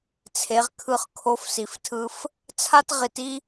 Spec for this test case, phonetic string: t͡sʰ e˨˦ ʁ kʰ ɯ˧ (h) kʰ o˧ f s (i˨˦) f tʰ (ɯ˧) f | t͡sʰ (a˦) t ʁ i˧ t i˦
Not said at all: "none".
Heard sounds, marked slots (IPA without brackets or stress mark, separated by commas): χ, i˨, ɯ˧, a˦